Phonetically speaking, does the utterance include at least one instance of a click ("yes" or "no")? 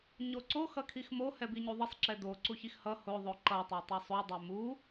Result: yes